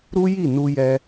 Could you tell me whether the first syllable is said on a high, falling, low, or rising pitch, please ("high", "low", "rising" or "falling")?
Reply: high